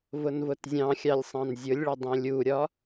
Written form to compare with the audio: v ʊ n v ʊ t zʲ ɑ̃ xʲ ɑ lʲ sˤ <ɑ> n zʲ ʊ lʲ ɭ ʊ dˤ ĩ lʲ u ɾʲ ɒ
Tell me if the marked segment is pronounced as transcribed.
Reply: no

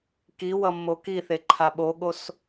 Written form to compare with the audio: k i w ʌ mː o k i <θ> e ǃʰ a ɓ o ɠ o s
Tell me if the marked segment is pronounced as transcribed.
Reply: yes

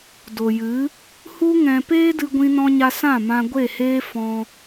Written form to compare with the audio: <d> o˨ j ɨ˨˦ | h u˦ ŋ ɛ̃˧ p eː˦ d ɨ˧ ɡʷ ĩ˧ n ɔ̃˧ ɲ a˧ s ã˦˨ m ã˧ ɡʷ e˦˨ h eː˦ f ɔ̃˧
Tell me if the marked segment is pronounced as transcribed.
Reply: yes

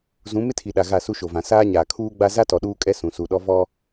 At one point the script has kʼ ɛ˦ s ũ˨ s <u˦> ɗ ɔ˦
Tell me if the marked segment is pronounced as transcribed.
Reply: no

